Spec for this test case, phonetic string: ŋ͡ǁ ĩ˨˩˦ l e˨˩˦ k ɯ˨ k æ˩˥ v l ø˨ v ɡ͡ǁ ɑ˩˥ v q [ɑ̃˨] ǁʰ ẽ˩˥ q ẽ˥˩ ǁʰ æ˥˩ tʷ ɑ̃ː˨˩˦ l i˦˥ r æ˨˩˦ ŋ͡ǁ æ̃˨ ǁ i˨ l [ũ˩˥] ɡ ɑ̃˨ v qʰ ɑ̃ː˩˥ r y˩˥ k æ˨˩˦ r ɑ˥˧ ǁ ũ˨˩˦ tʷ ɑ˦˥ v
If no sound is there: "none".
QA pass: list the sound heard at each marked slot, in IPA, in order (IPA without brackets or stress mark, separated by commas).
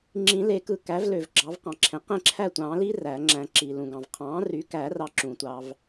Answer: ɑ̃˨, ũ˨